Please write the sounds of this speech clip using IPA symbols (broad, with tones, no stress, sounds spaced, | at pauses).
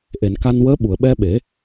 ʔ e˨˩˨ n k a˧ n w əː˧˥ ɓ u˨˩˨ ə̯ ɓ ɛ˧ ɓ e˨˩˦